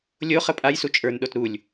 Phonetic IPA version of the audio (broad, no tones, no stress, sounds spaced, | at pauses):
lʲ o χ ə pʼ a j s u t͡ʃʼ ə˞ n ɗ o t ɾ u lʲ